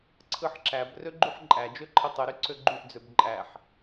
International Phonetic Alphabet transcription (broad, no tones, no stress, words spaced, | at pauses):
ǀʰɯħǁæb røɡ͡ǃyħǃʼæ d͡ʒøǃʰitˤɯ ɾyǀøɡ͡ǃyʔ d͡zøbǃʼæħ